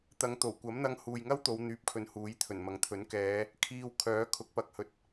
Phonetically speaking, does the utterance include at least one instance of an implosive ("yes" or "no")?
no